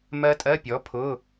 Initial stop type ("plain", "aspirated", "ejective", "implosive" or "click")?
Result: ejective